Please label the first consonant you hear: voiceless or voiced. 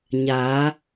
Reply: voiced